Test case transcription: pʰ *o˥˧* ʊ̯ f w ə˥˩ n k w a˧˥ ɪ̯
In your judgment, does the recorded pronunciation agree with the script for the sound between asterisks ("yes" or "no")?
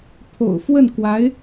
no